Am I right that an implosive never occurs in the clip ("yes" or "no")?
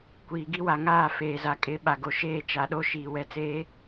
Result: no